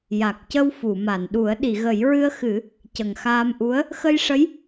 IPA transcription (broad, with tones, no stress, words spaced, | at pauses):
ja˨˩k̚cə˧w fu˨˩˨ma˨˩˨nɗu˨˩˦ə̯ ɗi˨˩˨ɣə˨˩˦jɹɨ˧ə̯xɨ˨˩˦ | cə˨˩ŋxaː˧mʔu˧˥ə̯ | xə˧jʂə˧˥j